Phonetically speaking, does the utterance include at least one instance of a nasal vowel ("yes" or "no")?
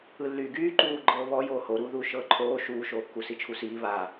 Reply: no